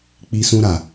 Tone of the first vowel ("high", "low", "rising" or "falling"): high